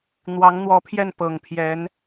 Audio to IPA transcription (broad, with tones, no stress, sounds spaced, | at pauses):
n̪ w ɑ˧˥ ŋ n̪ w ɔ˧˥ pʰ j ɛ˥˩ n p ɤ˨˩ ŋ pʰ j ɛ˧˥ n